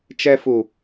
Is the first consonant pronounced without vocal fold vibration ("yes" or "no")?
yes